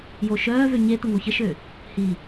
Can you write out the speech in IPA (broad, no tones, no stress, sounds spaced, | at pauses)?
j o ʃ œː v ø ɲ e t̪ ə ŋ o ç ə ʃ ø | h i